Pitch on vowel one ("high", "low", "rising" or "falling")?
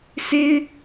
high